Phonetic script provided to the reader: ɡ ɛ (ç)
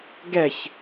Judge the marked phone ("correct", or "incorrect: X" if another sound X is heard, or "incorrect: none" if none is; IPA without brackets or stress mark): correct